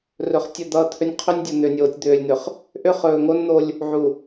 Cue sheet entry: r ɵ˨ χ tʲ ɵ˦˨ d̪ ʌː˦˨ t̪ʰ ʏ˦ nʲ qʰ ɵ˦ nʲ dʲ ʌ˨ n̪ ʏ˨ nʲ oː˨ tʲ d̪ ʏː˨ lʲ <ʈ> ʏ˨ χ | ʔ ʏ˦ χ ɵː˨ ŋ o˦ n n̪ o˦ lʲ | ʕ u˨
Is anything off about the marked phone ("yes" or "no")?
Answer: yes